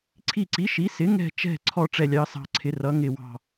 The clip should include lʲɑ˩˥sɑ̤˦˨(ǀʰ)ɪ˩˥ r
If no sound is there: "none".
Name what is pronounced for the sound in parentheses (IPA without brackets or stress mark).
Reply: ǀʰ